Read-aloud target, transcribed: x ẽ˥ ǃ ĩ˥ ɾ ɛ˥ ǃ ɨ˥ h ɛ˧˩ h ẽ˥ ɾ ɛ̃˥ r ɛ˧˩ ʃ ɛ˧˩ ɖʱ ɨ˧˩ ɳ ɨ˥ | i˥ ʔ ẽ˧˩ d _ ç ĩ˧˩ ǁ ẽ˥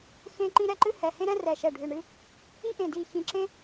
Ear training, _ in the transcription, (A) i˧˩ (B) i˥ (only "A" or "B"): A